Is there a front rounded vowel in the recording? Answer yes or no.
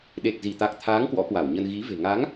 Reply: no